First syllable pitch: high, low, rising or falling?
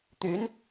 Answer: rising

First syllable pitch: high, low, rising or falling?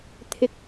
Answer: rising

